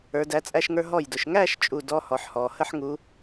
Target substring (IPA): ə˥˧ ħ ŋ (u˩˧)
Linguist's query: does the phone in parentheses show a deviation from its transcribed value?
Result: no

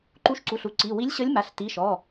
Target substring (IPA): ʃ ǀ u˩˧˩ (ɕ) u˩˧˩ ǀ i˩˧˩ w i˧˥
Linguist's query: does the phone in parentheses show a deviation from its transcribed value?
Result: yes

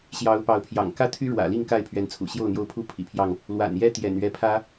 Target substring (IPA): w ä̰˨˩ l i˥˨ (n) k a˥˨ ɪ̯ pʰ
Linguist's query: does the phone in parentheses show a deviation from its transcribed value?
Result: yes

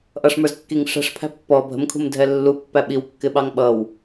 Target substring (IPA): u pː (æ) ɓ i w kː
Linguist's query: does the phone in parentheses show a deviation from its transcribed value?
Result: no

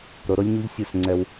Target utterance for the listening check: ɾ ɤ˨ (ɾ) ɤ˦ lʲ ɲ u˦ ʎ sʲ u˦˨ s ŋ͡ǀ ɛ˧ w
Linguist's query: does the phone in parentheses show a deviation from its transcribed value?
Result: no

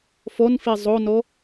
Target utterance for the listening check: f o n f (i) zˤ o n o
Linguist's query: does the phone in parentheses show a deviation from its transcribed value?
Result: no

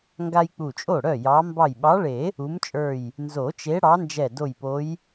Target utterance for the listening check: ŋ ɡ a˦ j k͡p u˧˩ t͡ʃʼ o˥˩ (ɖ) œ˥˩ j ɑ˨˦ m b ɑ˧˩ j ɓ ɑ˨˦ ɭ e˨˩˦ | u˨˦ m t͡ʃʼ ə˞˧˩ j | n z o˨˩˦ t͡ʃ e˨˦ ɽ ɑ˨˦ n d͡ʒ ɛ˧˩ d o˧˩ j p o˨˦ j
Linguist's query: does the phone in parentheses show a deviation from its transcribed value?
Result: yes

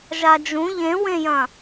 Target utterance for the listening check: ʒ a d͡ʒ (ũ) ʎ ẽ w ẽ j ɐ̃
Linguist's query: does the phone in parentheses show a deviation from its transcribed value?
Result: no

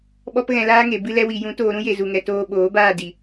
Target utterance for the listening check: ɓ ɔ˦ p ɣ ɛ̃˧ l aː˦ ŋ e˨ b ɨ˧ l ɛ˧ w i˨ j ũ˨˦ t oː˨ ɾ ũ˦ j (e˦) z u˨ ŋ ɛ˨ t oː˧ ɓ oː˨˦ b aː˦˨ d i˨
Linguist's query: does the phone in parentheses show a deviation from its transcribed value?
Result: yes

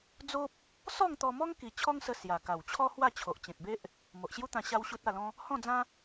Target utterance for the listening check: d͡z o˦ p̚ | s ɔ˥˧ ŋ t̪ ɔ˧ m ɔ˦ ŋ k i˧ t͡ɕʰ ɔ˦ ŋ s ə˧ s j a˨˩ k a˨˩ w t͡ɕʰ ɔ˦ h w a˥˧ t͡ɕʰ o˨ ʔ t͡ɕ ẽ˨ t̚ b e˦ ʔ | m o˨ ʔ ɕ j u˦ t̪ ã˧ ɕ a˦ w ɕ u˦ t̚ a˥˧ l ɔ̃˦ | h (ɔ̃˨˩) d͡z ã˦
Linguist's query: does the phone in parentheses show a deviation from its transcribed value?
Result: yes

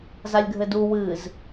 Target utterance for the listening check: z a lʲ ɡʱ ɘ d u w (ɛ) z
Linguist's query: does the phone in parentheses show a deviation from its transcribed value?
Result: yes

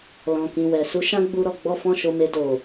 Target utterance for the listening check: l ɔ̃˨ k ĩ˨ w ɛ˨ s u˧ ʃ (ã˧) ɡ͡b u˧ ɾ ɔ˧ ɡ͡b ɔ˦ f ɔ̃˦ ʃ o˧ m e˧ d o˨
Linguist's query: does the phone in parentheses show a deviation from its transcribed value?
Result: yes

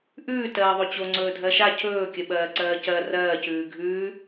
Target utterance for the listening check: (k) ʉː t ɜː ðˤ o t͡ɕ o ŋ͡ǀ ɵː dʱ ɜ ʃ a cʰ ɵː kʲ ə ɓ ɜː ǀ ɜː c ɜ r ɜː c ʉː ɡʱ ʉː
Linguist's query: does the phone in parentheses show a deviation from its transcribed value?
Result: yes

